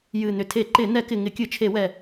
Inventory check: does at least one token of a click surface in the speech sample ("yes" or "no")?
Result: yes